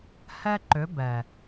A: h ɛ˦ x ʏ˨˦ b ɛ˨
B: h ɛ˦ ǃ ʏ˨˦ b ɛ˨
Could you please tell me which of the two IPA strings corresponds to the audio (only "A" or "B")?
B